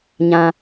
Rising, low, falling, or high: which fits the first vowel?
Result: low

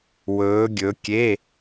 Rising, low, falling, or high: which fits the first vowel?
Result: rising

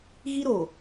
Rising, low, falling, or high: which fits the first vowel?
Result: high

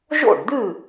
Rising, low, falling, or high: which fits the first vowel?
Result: falling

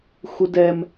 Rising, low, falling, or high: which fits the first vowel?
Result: high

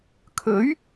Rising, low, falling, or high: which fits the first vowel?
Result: rising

